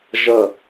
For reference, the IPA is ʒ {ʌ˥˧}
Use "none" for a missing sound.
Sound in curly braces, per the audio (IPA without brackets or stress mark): ʌ˥˧